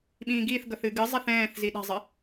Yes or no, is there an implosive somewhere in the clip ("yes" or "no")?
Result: yes